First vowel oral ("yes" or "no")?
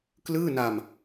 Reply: yes